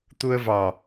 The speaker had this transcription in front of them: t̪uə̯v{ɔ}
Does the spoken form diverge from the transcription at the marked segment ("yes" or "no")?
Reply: yes